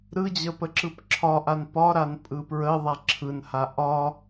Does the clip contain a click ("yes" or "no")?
yes